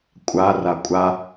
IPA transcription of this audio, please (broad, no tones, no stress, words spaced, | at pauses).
kʷʼa rakʷʼa